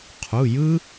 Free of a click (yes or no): yes